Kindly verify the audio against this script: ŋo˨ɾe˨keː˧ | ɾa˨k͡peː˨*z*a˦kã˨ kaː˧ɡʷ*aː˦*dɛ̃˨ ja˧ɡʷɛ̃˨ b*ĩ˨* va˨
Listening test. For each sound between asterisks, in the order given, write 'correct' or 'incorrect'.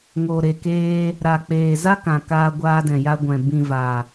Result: correct, incorrect: aː˧, correct

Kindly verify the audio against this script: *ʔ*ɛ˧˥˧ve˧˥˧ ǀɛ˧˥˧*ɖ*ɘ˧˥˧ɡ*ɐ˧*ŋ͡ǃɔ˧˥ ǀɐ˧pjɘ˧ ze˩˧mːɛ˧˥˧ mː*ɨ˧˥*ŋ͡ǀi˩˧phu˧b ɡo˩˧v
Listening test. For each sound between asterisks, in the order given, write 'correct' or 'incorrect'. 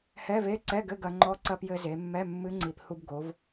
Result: incorrect: h, incorrect: ɡ, correct, correct

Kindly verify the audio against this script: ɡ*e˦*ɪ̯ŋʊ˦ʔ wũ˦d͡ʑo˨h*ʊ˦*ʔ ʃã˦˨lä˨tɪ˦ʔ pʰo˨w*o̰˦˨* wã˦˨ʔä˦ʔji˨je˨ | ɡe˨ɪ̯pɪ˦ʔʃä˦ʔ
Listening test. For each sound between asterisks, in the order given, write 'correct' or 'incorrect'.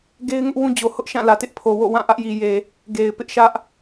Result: correct, correct, correct

